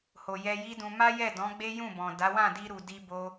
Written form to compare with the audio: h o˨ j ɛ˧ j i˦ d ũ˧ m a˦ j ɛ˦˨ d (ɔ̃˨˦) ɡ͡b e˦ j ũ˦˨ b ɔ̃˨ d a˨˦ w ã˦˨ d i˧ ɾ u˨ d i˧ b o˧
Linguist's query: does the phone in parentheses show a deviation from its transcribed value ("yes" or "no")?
no